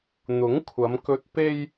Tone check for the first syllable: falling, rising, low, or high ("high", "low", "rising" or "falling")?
rising